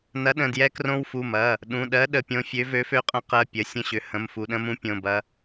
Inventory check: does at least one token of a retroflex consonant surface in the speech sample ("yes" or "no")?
no